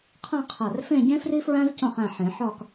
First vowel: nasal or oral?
nasal